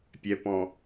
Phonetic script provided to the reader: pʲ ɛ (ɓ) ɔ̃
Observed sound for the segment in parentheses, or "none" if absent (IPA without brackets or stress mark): p